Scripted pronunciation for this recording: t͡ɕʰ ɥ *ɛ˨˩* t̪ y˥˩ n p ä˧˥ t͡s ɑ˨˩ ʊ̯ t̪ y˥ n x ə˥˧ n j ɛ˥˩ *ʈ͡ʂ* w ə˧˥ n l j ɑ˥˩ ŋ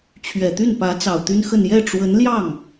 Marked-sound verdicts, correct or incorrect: correct, correct

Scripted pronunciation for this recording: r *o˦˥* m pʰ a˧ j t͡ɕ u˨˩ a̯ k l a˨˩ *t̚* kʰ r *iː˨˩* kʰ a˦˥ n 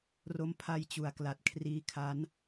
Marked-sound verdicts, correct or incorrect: correct, correct, incorrect: iː˦˥

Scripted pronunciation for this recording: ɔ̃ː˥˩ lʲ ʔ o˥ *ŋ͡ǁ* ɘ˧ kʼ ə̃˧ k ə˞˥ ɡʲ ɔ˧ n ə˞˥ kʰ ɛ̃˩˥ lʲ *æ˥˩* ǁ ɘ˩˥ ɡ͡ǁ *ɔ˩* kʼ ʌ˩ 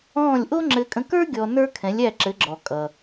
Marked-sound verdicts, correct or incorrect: correct, correct, correct

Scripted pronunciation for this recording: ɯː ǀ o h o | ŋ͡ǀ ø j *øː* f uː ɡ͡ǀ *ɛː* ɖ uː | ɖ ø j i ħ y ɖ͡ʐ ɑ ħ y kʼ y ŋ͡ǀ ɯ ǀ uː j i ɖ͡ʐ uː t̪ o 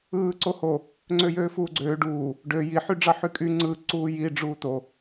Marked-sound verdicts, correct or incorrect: correct, incorrect: øː

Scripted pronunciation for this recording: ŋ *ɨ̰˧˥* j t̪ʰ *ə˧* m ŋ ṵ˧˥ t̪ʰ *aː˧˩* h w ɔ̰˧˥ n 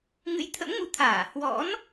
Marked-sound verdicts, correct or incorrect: correct, incorrect: ə̰˧˥, correct

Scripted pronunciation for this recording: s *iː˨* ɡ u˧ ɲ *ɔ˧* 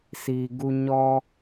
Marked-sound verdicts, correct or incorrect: correct, correct

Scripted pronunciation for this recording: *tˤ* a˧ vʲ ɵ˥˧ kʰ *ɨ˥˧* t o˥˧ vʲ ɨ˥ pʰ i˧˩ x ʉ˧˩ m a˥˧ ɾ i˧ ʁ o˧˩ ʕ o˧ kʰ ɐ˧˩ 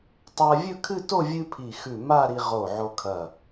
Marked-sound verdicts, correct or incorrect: correct, correct

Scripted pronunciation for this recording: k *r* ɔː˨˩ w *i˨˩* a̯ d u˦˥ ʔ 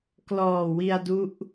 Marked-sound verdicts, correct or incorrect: incorrect: l, incorrect: i˧

